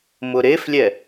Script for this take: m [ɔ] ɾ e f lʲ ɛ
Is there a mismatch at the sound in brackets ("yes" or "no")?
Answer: yes